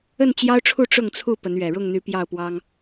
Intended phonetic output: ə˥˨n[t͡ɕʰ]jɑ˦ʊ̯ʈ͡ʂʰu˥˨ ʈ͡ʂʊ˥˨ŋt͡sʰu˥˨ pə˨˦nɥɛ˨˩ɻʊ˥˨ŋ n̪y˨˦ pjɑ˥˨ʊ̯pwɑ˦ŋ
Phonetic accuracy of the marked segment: incorrect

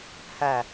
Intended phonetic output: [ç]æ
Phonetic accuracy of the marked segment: incorrect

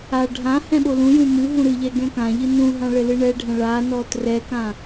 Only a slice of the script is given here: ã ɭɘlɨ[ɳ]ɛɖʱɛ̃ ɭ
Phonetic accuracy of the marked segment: correct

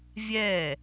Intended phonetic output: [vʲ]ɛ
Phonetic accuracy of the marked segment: correct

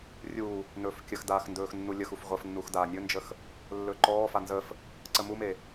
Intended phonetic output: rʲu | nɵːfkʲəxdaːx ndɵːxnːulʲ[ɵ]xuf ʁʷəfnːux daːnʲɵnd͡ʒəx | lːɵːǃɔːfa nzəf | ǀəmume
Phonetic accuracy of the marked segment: incorrect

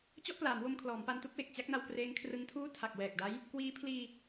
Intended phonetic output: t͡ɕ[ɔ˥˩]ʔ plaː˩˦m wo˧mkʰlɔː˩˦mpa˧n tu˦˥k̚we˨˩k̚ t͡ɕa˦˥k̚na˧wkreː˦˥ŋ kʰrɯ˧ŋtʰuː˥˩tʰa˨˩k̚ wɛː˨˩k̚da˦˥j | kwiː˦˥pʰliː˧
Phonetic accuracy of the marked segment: correct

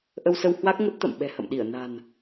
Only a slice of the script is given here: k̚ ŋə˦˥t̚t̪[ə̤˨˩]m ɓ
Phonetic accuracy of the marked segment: incorrect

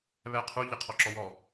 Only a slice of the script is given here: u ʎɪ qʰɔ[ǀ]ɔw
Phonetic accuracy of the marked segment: incorrect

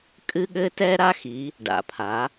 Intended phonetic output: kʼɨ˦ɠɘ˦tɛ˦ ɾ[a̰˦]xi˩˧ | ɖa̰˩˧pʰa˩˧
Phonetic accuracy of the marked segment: incorrect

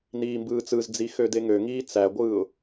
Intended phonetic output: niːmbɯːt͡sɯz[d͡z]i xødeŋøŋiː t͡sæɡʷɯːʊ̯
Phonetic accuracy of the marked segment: correct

